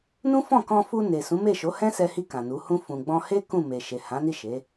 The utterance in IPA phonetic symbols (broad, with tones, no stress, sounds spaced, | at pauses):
n ũ˦ f ɔ̃˦˨ k ɔ̃˧ f u˧ n e˨ s ũ˨˦ m e˦˨ ʃ o˨˦ h ɛ̃˦ s ɛ˧ h i˧ k ã˨ n u˨˦ h ũ˧ f ũ˨ ɡ͡b ɔ̃˧ h e˦ k ũ˦˨ m e˨ ʃ e˨ h ã˨˦ n i˦˨ ʃ e˨˦